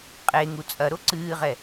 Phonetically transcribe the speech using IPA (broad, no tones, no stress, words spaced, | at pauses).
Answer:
qʼeŋu t͡sʼɐɾo ǀɨːʁɛ